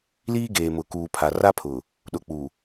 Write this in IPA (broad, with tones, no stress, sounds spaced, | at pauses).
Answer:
l iː˦ ɡ eː˨ m ʊ˨ k uː˨ pʰ a˨ r a˦ pʰ ʊ˨ | ɗ ʊ˨ k͡p u˨